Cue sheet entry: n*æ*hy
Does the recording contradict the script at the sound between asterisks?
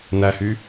no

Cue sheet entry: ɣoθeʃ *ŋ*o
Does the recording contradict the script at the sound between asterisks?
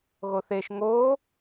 no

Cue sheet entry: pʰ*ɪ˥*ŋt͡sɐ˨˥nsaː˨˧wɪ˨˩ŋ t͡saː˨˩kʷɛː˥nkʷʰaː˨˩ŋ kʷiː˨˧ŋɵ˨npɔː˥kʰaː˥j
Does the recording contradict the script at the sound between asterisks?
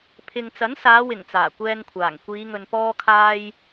yes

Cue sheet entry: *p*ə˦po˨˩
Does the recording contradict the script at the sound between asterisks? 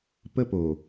no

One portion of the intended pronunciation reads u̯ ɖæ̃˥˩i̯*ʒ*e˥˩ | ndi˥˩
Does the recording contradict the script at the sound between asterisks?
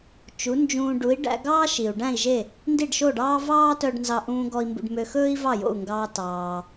no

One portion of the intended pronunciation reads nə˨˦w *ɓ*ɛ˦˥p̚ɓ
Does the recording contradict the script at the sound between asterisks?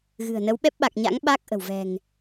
no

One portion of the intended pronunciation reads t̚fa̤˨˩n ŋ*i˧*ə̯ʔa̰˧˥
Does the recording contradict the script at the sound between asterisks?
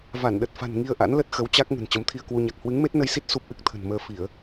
no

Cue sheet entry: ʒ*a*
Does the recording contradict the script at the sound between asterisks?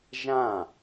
yes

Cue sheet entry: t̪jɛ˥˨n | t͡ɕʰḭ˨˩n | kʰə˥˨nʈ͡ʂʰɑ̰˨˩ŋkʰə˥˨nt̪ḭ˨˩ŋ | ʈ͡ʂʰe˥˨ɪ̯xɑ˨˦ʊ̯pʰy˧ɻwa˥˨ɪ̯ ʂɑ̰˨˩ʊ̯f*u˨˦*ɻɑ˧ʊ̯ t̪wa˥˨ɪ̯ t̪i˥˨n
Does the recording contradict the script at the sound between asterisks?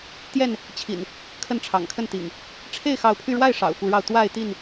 no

